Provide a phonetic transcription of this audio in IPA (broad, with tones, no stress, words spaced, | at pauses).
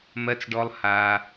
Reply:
mɜ˩t͡sɖɔ˩lˠ ha˩